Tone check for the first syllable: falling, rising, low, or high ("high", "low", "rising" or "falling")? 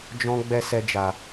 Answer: high